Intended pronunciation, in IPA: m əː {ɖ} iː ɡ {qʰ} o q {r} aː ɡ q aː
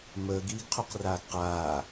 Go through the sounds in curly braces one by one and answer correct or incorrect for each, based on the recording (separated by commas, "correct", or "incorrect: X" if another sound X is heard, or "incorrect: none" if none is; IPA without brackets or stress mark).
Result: incorrect: ɡ, correct, correct